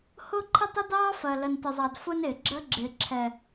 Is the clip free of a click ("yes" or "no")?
no